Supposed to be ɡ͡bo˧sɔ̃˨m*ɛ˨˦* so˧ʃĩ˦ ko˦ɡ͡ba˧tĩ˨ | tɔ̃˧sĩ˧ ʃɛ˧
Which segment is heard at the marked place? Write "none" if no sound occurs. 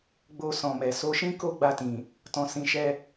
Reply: ɛ˨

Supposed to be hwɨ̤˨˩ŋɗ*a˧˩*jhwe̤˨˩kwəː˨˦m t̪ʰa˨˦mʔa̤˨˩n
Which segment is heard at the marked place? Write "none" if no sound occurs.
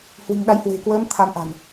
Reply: a˨˦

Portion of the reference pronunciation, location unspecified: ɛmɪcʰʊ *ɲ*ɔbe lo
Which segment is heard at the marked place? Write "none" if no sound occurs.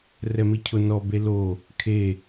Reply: n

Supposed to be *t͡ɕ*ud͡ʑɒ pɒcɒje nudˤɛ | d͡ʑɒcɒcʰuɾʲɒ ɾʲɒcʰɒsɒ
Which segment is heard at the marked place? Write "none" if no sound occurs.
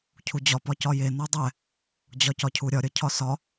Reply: cʰ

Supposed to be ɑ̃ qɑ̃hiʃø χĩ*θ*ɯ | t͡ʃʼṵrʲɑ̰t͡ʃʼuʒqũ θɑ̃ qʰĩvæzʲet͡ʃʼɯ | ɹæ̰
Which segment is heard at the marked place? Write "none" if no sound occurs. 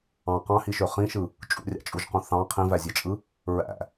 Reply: ʃ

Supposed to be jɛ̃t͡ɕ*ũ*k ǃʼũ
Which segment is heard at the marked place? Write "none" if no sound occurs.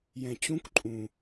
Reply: ũ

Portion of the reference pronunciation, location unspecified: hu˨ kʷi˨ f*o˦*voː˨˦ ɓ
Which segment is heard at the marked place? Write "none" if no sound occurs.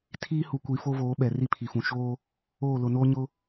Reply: o˦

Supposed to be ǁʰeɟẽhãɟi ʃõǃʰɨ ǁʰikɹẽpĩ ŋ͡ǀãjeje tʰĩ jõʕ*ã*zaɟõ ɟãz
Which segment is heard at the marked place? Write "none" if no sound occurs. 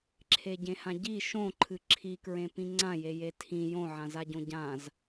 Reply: ã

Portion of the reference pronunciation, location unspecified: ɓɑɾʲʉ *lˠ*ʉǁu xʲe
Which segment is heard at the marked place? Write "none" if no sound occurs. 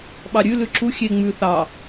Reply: l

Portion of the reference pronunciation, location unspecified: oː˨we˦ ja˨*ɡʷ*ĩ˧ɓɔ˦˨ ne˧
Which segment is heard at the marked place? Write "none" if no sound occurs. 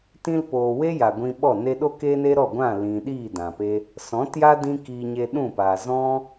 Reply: ɡʷ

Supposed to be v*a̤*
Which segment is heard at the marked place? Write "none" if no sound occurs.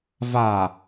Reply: a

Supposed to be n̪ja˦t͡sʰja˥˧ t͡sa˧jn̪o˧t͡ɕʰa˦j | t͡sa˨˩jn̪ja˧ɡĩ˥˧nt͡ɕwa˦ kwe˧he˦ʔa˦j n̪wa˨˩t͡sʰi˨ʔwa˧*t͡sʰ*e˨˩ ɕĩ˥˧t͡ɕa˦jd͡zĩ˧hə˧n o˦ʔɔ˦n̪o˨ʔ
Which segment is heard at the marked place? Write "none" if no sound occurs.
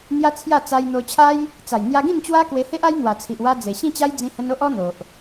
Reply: d͡z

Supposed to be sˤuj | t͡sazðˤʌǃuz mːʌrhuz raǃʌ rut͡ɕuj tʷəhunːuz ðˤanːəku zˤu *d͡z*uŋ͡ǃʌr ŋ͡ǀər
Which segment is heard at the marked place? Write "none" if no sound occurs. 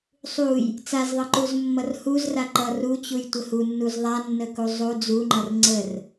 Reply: d͡z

